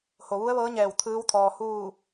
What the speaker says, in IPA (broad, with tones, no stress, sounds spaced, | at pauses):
h o˩ ʋ u˧˥ ə̯ ʋ ɤː˧˥ ɲ ɛː˧˩ w t̪ʰ ɯː˧˥ w t̪ʰ ɔː˩ h uː˧˩